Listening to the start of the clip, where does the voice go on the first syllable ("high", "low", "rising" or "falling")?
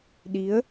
rising